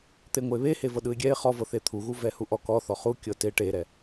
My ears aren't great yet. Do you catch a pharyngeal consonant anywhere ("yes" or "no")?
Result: no